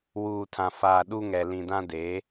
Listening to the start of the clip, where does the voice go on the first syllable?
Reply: low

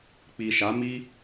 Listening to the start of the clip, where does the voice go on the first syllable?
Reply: low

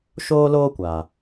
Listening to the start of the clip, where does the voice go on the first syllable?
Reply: high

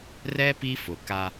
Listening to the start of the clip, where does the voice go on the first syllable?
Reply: high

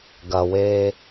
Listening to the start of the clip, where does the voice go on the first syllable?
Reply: low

